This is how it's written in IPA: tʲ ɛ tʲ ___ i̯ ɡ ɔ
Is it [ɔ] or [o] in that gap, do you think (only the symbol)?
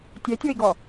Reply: o